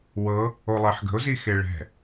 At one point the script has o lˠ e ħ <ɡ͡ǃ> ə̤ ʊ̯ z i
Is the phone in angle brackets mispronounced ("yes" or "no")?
yes